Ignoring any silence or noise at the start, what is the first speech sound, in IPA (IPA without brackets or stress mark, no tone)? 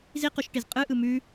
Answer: z